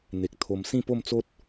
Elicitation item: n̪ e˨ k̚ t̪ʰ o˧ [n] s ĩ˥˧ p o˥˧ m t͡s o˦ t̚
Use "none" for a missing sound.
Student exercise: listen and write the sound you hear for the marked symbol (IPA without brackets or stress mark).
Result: m